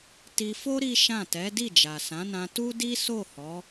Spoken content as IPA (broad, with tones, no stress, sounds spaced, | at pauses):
t i˧ f o˦ ɾ i˦ ʃ ã˦˨ t ɛ˨˦ d i˦˨ d͡ʒ a˨ s ã˨˦ n ã˧ t u˦ d i˦ s o˦˨ h ɔ˨˦